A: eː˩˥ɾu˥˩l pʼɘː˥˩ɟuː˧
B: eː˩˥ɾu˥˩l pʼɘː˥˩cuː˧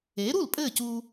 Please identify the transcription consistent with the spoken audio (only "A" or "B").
B